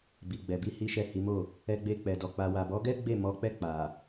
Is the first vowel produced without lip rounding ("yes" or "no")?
yes